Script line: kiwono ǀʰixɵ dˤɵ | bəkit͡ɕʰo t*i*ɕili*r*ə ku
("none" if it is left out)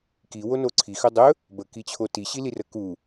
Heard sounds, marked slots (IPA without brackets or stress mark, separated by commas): i, r